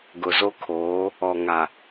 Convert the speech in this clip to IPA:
ɡʊ˨zo˦ kʰoː˨˦ | ɔ˨ ŋa˨

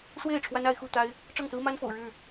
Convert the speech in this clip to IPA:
ʂwe˥˨ɪ̯ ʈ͡ʂʰwa˦na˨˦ɪ̯xu˥˨t̪a˦ɪ̯ | ʈ͡ʂɤ˥˨ŋsɹ̩˦ma˦nfo̰˨˩ʊ̯ ɻɻ̩˥˨

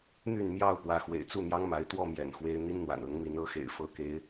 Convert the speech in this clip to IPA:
n̪y˥˨nmjɑ˥˨ʊ̯ pwä˨˦xwḛ˨˩ɪ̯t͡su˥˨ n̪jɑ˦ŋma˨˦ɪ̯ t̪wɔ˥˨mjɛ̰˨˩nxwe˨˦ɪ̯ n̪i˦n n̪wa̰˨˩nɤ˨˦ŋmi˨˦n ɤ˨˦xḛ˨˩ɪ̯ fɤ˨˦ke˨˦ɪ̯

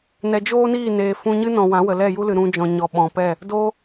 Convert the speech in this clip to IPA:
nɛ˨d͡ʒoː˦niː˦˨ neː˨ fũ˧ɲɨ˦nɔ̃˨ wã˨˦wə˨ lɛ˦˨ju˦lɨ˨ ɾũ˧d͡ʒɔ̃˨ɲɔ˨ ɓɔ̃˨pɛ˦˨ | doː˦

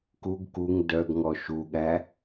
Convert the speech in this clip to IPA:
kuɡ kuŋ dœɡŋɔ ʃuɠæ

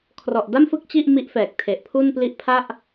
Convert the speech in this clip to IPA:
kʰrɔ˨˩ʔda˥˩mfɯ˥˩k̚ t͡ɕi˥˩ʔmi˦˥ʔfɛː˨˩k̚ tʰe˨˩ʔpʰu˥˩npli˥˩ʔ pʰa˥˩ʔ

